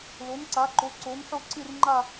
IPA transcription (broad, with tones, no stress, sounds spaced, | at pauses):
l o˨˥ n ǀ a˨˥ ǃ o˨˥ ǀ o˨˥ n ħ o˥˧ ǀ ɨ˥˧ r ŋ͡ǃ a˥˧